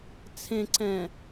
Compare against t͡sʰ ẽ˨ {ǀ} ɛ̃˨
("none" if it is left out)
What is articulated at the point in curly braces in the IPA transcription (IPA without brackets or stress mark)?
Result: ǀ